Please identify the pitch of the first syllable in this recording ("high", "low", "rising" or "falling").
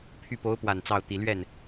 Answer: falling